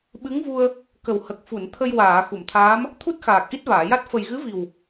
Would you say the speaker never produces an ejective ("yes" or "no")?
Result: yes